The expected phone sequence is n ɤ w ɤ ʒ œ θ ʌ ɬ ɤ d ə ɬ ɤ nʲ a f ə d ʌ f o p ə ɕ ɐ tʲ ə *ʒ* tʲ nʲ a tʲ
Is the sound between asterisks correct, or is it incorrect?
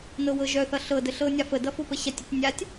incorrect